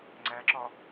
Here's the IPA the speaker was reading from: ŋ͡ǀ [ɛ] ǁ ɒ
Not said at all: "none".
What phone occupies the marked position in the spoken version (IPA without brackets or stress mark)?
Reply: æ